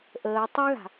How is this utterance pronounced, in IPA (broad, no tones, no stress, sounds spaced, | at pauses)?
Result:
ʔ əː tˤ ɛ ɣ a̤